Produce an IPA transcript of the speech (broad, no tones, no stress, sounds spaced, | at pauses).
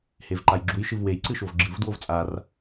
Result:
h e v ǃ a j ɡ͡ǁ u j ʃ ɨ v w e j ǀ ɨ ʃ o v ɡ͡ǁ ɨ v d w o v t͡sʼ a r